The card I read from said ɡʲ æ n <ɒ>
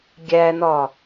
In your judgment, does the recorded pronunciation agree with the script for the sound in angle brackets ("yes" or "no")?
yes